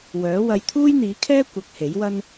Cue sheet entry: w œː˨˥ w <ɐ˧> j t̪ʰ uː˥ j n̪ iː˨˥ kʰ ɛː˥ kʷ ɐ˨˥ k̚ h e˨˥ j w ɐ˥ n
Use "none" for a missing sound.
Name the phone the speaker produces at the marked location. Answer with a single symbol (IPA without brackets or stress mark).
ɐ˧